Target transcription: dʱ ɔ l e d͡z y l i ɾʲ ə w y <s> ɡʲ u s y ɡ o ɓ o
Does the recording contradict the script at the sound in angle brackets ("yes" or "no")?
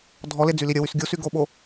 no